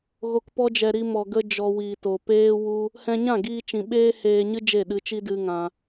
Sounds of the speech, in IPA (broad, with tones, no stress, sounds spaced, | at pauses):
ɣ o˨ k p ɔ˧ d͡ʒ ɛ˨ ɾ i˧ m ɔ˨ ɡ ə˧ d͡ʒ ɔ˨ w iː˨ t o˨ p eː˦ w u˦ | h ɛ̃˧ ɲ ã˦˨ ɡ iː˧ t͡ʃ ĩ˨ ɓ eː˦ h eː˧ ɲ ɨ˦ d͡ʒ e˦˨ ɗ ɨ˧ t͡ʃ i˦ d ɨ˦ ŋ ã˧